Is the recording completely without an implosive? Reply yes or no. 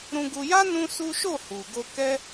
yes